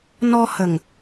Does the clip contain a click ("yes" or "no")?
no